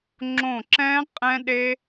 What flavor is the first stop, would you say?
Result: click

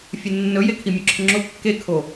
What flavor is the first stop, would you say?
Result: aspirated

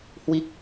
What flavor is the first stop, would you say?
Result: plain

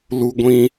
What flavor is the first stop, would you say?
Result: plain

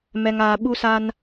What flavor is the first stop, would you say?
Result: implosive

